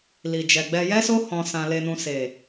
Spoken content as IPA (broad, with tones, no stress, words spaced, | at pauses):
li˨d͡ʒɛ˨ɡ͡bɛ˧ jɛ˦so˦ hɔ̃˧ sã˨le˨nũ˨se˨